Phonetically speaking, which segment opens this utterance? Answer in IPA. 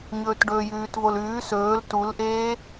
ɲ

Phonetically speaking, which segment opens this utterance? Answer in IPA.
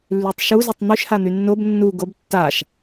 lː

